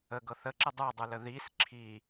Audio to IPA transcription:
ə ɡ ɤ θ ə ǁ ə dˤ ə˞ dˤ ə˞ l ə ð i s ǁʰ i

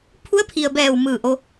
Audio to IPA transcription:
pʰ u˧˥ ə̯ pʰ i˩ ə̯ b ɛː˧˩ w m ɯː˧˩ ʔ o˧

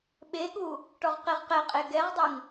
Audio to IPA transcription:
ɓ e ɠ u | ʈ ɔ ʁ q e ʁ q ɛ qʼ e ɡ ɛ ʁ dˤ ɘ ŋ

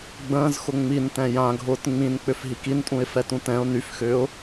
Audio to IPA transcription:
ɡ͡b ə̃ː z x ʊ ŋ͡m i n t ɛ̃ j ã ɡʱ ʊː t ŋ͡m ĩ n k͡p ʏ f ɦ i k i n tʼ ũ ɪ̯ f ɛ t ũ t ɛ̃ ʊ̯ n y f x ʏː ʊ̯

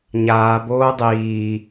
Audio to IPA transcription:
ɲ aː b oː dˤ iː

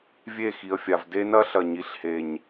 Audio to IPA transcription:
vʲ e˦˨ x i˨ ə̯ fʲ a˨ v d e˦ n ɐ˦ ɬ ɐ˨ ɲ i˨ ɬ h e˨ ɲ

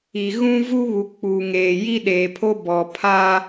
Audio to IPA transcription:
i˨ ɣ ũ˦ v u˦ β u˨ k͡p u˨ ŋ eː˨ j i˦ ɗ eː˨ pʰ o˦ b ɔ˨ pʰ aː˦

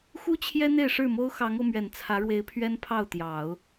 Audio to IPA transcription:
x u˥ t͡ɕʰ j ɛ˥ n̪ e˥˧ ɪ̯ ʂ ɻ̩˥˩ m o˥ ʊ̯ x ɑ˧˥ ŋ o˧ ʊ̯ m ɥ ɛ˨˩ n t͡sʰ ä˧˥ ɻ w e˧˥ ɪ̯ pʰ ɥ ɛ˥ n pʰ ɑ˥˩ ʊ̯ t̪ j ɑ˨˩˦ ʊ̯

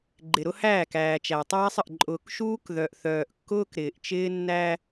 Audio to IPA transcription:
ɡ͡ǃ ɪ˨ ɾ ʊ˦ h æː˦˨ k æː˨ t͡ʃ æ˨ tˤ æː˦ sˤ ə˨ ʔ ǃʼ ʊː˨ k ʃ uː˦ k ð œ˨ ʔ θ œː˨ ʔ kː ʊː˦ k ɾ ɪː˨ ʔ t͡ʃ ɪː˦ nː æ˦

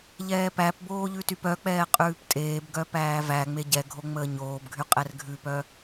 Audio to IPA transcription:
ʎ ɛː p æ p b oː ʎ ʉ t y p œ k͡p ɛː qʼ ʉː p tʼ eː b ɡ œ p æː v æ ŋ͡m e ɟ ɛ ɡʱ o ŋ͡m əː ɲ oː b ɡʱ y qʼ ɛ r ɡʱ ʉ p œ

